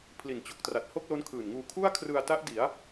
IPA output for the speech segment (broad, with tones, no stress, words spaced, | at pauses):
pʰli˨˩nt͡ɕo˨˩k̚tra˨˩t̚ ho˥˩k̚lo˦˥nkʰɯː˨˩nŋuː˧ kʰu˥˩a̯kʰrɯ˧a̯ta˦˥ʔ di˩˦a̯